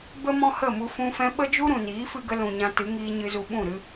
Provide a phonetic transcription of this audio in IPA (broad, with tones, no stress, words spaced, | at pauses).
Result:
bə˦mɔ̃˦hə˦˨mu˧ fũ˧fɛ̃˧ɓə˦d͡ʒu˦ ɾũ˨niː˨˦fɨ˧ɡə˧ lũ˨ɲã˧tɨ˨˦ŋiː˧ ɲɨ˧zu˧ɓũ˦˨ɾɨ˦